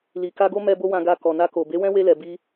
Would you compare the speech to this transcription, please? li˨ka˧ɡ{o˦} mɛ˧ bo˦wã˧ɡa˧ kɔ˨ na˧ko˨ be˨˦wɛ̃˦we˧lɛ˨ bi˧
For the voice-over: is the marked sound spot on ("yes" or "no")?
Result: yes